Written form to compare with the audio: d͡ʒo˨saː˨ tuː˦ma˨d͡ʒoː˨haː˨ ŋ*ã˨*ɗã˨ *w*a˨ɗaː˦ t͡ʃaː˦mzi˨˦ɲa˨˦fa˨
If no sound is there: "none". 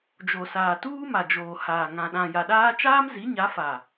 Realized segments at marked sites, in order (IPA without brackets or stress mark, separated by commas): ã˨, j